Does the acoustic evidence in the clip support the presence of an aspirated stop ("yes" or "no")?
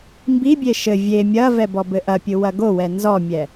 no